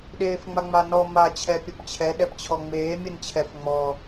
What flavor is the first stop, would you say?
implosive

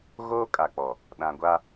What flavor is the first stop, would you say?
ejective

